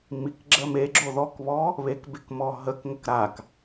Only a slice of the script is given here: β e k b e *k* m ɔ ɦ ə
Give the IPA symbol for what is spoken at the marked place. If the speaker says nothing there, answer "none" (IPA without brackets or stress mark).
k